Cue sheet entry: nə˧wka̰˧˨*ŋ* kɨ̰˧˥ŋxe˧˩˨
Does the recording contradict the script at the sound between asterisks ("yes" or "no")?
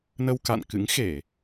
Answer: yes